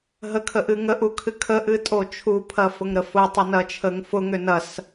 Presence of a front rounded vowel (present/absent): present